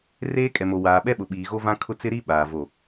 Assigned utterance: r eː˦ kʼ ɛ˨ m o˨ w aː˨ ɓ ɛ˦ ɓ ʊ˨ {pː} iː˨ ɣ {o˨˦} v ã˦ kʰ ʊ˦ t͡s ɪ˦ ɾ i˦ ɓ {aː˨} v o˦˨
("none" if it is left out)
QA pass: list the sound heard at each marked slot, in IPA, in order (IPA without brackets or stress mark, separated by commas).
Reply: ɓ, o˦, aː˨